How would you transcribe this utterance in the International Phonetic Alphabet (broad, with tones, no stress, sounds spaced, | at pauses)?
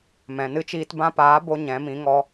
m ɛ̃˨ n ɨ˦ t͡ʃ iː˧ t b ã˧ p aː˨˦ b o˧ ɲ ɛ̃˨˦ m ĩ˨˦ ŋ ɔ˧